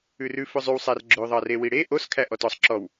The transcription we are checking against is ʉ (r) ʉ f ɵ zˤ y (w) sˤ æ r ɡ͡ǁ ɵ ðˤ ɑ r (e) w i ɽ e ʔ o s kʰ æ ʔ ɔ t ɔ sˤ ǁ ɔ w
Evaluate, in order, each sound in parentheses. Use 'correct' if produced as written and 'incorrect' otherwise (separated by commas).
correct, correct, correct